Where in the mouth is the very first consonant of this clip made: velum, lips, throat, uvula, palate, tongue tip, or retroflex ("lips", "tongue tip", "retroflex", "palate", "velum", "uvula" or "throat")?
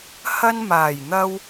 throat